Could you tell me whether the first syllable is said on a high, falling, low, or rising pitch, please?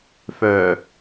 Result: low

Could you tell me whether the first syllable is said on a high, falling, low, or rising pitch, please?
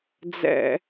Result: low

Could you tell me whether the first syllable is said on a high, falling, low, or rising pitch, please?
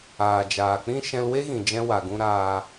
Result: low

